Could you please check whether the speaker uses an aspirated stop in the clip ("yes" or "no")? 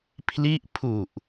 yes